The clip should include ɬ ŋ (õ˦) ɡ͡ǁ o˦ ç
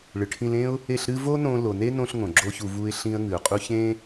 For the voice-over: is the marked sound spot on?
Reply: no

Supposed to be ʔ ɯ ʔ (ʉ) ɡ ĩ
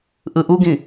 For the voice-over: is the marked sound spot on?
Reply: no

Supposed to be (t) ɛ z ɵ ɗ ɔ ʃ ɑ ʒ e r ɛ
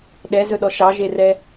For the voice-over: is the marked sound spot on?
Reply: no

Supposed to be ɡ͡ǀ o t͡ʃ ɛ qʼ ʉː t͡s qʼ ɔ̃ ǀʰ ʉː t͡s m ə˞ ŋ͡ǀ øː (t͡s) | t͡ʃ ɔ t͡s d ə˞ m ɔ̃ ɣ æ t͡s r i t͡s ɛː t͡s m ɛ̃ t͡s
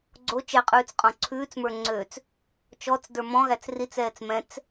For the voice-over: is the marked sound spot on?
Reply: yes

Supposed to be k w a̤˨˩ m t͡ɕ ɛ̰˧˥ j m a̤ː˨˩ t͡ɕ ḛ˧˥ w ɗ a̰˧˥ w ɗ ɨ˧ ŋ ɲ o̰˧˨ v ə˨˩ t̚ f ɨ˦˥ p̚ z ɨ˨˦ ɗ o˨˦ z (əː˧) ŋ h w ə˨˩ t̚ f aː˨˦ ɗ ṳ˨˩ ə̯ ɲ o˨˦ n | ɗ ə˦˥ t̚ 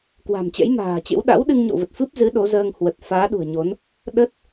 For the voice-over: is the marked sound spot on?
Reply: yes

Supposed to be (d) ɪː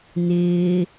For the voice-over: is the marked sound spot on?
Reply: no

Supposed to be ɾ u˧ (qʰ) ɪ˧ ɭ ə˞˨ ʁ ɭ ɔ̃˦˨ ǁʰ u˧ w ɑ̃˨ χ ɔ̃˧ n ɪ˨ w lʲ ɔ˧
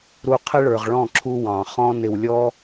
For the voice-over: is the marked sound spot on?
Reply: yes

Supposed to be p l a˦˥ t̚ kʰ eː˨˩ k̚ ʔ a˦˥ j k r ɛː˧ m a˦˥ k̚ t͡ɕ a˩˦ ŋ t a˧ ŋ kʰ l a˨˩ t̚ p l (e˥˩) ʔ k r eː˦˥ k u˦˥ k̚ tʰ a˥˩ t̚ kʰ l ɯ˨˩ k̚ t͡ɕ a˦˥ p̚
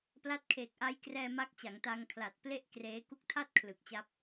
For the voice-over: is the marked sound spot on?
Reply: yes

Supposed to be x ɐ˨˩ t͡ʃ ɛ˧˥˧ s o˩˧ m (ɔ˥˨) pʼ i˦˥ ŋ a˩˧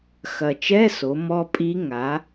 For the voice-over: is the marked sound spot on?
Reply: no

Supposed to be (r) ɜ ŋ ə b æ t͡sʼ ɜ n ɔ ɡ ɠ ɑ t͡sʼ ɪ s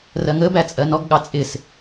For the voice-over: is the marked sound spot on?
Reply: yes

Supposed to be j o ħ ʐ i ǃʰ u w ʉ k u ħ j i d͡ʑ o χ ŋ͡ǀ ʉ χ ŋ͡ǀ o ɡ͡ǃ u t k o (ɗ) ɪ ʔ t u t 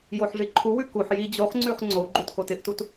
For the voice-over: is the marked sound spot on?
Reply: no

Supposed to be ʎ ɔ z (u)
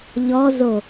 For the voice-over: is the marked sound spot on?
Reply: no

